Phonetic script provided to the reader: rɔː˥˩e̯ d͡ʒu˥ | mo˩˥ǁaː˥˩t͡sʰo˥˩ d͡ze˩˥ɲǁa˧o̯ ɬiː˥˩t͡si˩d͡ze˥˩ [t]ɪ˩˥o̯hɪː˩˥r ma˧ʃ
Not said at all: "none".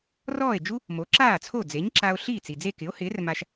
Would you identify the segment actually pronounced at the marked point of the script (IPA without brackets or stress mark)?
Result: k